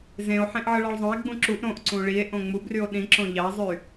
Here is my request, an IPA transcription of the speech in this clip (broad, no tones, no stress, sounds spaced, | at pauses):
z ẽ o̯ ħ ẽ ʔ ʕ ɯ ɭ ɑ ɭ zˤ õ e̯ ɡ͡b ũ ǁ u ʔ ɾ õ ʔ ǀ ũ ɭ i e̯ ʔ õ ŋ͡m u b r y o̯ ɗ ĩ ǁ õ ʎ ɑ zˤ y